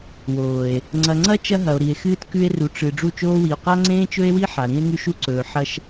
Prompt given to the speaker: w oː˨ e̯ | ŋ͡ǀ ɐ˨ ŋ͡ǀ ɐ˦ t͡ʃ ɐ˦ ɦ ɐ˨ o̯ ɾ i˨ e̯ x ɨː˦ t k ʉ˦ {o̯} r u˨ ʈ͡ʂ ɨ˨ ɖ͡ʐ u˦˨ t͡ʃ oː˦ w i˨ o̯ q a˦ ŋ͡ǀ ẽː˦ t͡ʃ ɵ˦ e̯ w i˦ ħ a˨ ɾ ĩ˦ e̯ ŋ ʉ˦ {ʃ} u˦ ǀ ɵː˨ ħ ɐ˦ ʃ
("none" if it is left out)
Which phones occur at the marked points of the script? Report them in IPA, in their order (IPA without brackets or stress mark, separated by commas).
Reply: e̯, ʃ